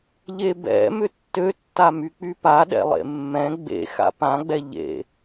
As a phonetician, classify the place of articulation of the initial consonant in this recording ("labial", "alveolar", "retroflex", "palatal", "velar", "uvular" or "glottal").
palatal